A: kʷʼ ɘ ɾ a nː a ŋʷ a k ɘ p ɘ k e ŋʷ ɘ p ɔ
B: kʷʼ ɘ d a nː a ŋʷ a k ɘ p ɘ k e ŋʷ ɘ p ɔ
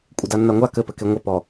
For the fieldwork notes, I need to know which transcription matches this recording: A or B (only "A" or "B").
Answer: B